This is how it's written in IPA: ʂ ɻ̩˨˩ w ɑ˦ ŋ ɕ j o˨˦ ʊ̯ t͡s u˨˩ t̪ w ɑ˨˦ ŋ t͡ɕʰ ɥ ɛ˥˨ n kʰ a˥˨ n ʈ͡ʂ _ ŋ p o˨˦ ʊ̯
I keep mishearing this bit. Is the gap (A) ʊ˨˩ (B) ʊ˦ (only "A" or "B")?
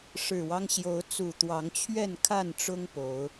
B